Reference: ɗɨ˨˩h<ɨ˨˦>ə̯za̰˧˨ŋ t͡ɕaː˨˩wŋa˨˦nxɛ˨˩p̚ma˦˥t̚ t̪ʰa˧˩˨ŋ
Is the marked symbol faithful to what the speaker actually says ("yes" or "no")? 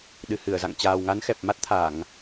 no